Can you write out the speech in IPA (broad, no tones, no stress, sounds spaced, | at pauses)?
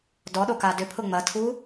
d ɔ ɗ o k a d ʏ pʰ ʊ ŋ͡m ɐ tʰ u